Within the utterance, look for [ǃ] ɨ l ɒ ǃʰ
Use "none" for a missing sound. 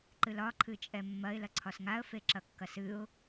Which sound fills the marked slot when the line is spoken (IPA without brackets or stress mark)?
ǃ